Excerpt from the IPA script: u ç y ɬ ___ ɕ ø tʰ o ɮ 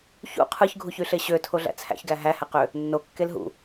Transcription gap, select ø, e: e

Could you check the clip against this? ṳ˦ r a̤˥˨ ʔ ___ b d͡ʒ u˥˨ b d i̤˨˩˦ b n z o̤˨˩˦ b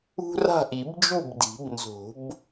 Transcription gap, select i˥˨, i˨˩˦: i˨˩˦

